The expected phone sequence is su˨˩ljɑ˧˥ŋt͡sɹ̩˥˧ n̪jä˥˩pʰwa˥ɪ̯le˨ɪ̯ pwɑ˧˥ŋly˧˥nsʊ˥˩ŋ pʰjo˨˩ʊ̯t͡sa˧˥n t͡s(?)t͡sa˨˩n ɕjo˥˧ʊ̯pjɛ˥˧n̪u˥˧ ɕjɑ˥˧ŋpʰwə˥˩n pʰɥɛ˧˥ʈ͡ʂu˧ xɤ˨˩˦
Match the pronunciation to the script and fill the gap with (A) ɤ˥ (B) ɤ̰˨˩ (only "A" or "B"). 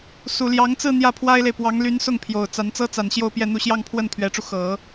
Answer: A